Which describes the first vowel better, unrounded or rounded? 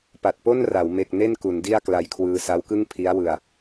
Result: unrounded